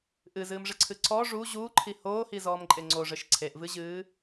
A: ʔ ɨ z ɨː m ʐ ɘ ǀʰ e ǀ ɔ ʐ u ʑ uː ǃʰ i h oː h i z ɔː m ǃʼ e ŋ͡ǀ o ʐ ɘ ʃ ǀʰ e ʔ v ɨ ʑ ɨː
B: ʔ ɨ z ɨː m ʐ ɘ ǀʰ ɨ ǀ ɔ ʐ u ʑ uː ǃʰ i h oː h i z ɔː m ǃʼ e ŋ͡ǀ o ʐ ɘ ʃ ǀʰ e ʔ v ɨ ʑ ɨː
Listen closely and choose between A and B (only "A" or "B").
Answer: B